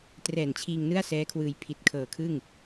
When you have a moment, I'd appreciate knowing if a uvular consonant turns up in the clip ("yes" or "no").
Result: no